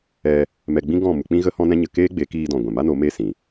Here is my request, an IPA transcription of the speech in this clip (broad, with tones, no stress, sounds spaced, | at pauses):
ɛ˧ | m ɛ˧ ɡ͡b ĩ˦ ɡ ɔ̃˦˨ m u˧ k͡p ĩ˦ ɣ ə˦ h ɔ̃˦ n ɛ̃˦ ɲ ə˧ k eː˦ ɡ͡b e˨˦ k iː˧ d ɔ̃˨ ɡʷ ɛ̃˨ m a˦ n o˨˦ m e˦˨ s ĩ˨